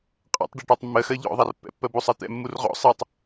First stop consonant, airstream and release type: ejective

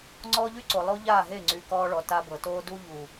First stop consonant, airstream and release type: click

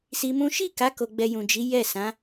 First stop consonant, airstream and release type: plain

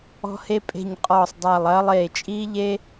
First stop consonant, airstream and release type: ejective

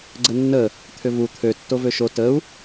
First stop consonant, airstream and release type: click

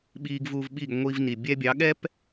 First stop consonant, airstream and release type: implosive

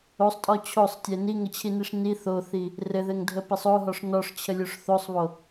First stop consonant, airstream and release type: ejective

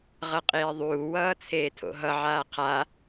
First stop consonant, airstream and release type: ejective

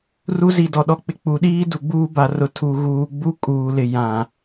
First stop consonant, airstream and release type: plain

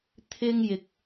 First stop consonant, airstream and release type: aspirated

